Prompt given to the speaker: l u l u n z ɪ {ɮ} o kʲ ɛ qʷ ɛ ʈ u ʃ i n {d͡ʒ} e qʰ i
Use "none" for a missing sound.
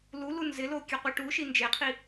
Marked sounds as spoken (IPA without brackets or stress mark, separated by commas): l, d͡ʒ